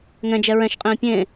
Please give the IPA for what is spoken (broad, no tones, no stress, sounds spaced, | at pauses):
ŋ ɛ̃ d͡ʒ ɛ ɹ ɛ̃ ʃ qʼ ĩː pʲ ẽ